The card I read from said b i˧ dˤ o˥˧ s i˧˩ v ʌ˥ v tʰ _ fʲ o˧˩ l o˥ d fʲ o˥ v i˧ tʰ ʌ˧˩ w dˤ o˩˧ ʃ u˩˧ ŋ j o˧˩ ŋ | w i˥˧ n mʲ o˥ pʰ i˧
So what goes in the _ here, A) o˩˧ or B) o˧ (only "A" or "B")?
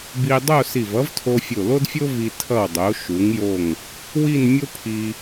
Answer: B